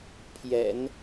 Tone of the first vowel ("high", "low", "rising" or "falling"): low